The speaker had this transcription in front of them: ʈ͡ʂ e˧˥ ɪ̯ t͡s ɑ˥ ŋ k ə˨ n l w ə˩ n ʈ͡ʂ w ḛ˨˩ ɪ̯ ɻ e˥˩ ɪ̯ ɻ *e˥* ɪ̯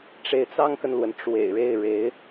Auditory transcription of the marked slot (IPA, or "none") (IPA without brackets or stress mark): e˧˥